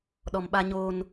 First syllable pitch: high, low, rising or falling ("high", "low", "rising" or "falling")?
low